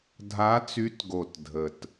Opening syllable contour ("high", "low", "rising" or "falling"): rising